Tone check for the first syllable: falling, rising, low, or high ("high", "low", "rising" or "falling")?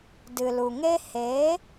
low